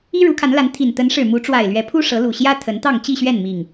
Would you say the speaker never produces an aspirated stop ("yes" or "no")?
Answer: no